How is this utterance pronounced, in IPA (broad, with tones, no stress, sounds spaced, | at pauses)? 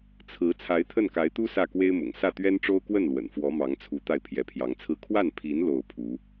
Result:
t͡sʰ ɹ̩˧˥ t͡sʰ a˧˥ ɪ̯ t̪ʰ ə˥˩ n k a˧˥ ɪ̯ t̪ u˥ s ä˥˩ k w e˥ ɪ̯ m ʊ̰˨˩ ŋ s ä˥˩ t̪ ɥ ɛ˥ n ʈ͡ʂ o˥ ʊ̯ k w ə˥˩ n l w ə̰˨˩ n f w ɔ˧˥ m ɑ˧˥ ŋ t͡sʰ u˧˥ t̪ a˥˩ ɪ̯ pʰ j ɛ˧˥ pʰ j ɑ˧˥ ŋ t͡sʰ ɹ̩˥ kʰ w a˥˩ n pʰ i˧˥ n l o˥˩ ʊ̯ pʰ u˧˥